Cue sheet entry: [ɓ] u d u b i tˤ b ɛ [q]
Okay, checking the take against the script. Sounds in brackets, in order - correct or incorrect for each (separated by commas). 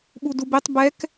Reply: correct, incorrect